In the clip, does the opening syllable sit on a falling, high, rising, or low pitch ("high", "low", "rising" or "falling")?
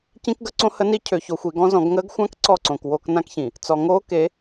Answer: high